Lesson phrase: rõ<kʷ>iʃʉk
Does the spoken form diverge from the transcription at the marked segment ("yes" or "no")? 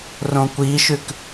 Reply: no